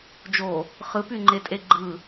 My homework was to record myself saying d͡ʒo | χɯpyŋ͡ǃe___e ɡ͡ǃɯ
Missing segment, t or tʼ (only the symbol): tʼ